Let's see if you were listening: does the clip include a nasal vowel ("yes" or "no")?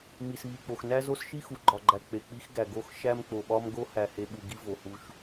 no